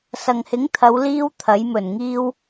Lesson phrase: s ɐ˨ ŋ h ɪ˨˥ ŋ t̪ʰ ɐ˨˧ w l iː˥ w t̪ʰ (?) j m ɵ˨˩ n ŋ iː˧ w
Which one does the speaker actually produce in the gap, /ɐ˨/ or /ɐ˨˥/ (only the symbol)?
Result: ɐ˨˥